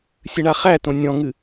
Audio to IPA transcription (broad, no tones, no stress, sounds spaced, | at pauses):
sʲ ɨ ɳ a χ æ t õ nʲ ɔ̃ ŋ ɨ